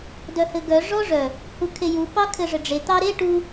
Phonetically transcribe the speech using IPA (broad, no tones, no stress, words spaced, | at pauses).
dœhɘɡœ ʐɔʐœ | hukʰeju pɑkʰɘʐɘɖ͡ʐe t̪ɑɾe ʈu